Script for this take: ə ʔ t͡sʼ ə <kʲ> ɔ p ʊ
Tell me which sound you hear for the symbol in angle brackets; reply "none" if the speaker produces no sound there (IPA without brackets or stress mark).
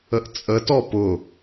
t